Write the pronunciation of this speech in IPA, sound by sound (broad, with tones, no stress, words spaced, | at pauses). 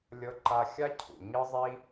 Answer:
lʲɤ˧ǃa˧xʲa˥ cʰṵ˩ ɲɯ˥zˤi˥